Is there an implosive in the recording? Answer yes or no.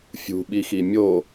yes